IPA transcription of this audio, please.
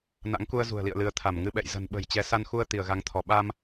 n a̰˧˥ ŋ k u˧ ə̯ z ṳ˨˩ ə̯ l ḭ˧˨ ə̯ l ɨ˨˦ ə̯ t̪ʰ a˧˩ m ŋ ɨ˧ ɓ ɛ̰˧˨ j z ə̤˨˩ n ɓ ə̤˨˩ j t͡ɕ ɛ˨˦ s a˧ n x u˧ ə̯ t̪ i˧˩ ə̯ ɣ a˨˦ ŋ t̪ʰ ɔ˧˩ ɓ a˧ m

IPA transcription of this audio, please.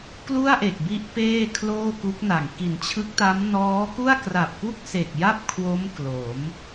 k l u˥˩ a̯ ʔ e˨˩ k̚ b i˦˥ ʔ p eː˥˩ kʰ l oː˥˩ k u˦˥ k̚ n a˨˩ ŋ k i˨˩ n t͡ɕʰ ɯ˦˥ k̚ t a˦˥ m n ɔː˦˥ k u˥˩ a̯ k r a˨˩ p̚ k u˥˩ k̚ s e˨˩ k̚ j a˥˩ p̚ kʰ w o˦˥ m k l o˩˦ m

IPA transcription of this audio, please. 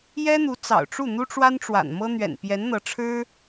j ɛ˥ n̪ u˧˥ t͡s ɑ̰˨˩ ʊ̯ ʈ͡ʂ u˥˩ n̪ u˥ ʈ͡ʂ w a˥ n ʈ͡ʂ w a̰˨˩ n m ɤ˥ n̪ ɥ ɛ̰˨˩ n p j ɛ˧˥ n n̪ ɤ˧˥ ʈ͡ʂʰ ɻ̩˥

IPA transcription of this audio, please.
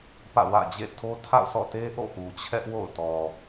p ä̰˦˨ w ä̰˦˨ d͡ʑ ḛ˦˨ tʰ o˦ tʰ a̰˦˨ ʊ̯ s ɔ̰˦˨ t e˦ ʔ o̰˦˨ ʔ u˨ t͡ɕʰ ɛ˦ ʔ w o̰˦˨ ʊ̯ t ɔ˨

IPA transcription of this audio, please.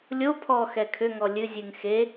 lʲ o pʰ ɔ x ɛ kʰ ʏ ŋ ɔ lʲ ɨ zʲ ɨ ŋ x e

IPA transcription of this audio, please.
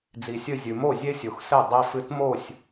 d͡z i˩ sʲ ɨ˥˩ zʲ ʉ˩ m o˥˩ zʲ e˥ sʲ o˩ x s e˥˩ dˤ i˧ f ɨ˧ t m o˥˩ sʲ

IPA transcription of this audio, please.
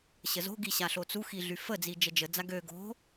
ɕ ə z o̤ ɡ i ɕ a ɬ o t͡s u x i ɮ y f ə d͡z i d͡ʒ ə d͡ʒ ə d͡z a ɡ ø ɡ o̤

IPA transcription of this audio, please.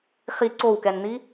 χ i ǀ o w k ɛ n n̪ i

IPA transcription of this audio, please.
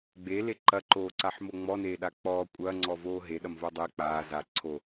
ɡ͡b e l e ǃ ɐ ǃ oː ǀ a ħ m o ŋ͡m ɔ n eː ɗ a k͡p ɔː kʷʼ ɐː ŋ͡ǀ ɔ v oː ɦ e ɗ ɐ m v o dˤ e k͡p aː z a ǀʰ o

